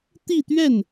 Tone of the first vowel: falling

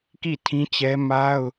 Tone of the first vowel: falling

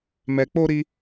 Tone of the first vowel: low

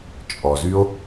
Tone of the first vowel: low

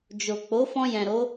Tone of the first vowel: low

